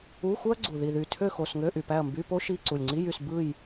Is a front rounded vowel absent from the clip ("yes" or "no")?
no